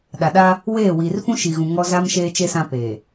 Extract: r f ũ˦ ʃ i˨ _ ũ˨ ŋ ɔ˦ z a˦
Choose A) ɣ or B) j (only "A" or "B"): A